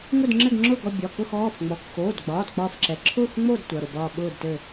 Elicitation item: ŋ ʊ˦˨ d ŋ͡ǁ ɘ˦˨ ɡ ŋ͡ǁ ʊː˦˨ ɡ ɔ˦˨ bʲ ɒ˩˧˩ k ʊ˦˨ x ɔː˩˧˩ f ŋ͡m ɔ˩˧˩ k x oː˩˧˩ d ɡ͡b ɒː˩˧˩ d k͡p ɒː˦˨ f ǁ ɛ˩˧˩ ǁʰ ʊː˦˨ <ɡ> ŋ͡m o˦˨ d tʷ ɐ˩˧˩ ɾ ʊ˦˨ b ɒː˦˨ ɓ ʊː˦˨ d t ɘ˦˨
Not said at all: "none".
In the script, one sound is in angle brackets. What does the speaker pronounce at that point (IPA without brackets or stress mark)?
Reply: x